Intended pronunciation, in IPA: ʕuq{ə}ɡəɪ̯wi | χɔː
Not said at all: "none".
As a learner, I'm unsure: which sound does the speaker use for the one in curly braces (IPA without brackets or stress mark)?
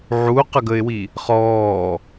ə